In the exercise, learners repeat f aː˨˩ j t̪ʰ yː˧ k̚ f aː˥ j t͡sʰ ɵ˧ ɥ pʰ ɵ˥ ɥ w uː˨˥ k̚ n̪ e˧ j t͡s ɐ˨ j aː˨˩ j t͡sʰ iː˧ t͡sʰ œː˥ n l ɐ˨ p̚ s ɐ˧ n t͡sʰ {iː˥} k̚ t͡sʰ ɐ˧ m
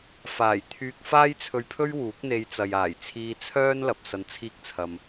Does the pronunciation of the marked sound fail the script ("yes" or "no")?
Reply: no